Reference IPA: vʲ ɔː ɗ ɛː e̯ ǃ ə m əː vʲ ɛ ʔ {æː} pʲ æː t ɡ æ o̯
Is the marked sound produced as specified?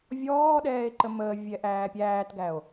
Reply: yes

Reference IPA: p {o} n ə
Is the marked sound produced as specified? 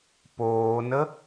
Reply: no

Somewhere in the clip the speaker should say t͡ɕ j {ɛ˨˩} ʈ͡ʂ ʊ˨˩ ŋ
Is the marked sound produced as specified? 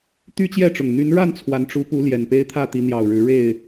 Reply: no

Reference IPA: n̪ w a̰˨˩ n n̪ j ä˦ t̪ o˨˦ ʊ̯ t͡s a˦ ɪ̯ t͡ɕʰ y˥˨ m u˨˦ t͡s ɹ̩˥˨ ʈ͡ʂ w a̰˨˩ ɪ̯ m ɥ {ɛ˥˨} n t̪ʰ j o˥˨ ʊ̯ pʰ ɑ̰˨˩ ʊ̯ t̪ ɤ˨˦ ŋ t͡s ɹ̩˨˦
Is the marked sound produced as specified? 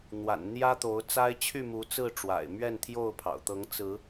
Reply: yes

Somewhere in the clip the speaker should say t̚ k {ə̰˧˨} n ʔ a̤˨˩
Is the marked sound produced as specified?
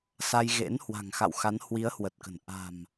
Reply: no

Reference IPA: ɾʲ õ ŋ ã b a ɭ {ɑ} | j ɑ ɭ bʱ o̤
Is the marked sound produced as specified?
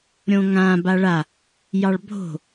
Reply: no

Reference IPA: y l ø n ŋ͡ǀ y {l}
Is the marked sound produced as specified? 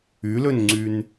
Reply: no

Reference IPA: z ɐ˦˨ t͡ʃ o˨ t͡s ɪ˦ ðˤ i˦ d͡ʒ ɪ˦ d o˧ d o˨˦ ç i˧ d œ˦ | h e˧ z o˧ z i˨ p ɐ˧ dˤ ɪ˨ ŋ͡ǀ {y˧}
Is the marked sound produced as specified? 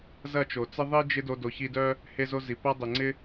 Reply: no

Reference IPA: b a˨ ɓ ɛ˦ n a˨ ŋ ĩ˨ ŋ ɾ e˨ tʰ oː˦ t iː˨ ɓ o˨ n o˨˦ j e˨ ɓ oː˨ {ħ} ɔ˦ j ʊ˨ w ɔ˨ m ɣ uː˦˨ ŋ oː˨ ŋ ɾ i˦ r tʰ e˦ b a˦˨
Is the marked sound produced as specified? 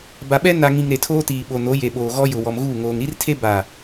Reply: no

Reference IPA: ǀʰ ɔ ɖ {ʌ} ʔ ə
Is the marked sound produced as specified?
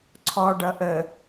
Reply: yes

